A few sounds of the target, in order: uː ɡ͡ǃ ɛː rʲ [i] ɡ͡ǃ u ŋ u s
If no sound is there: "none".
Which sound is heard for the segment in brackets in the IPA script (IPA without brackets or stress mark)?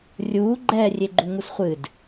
e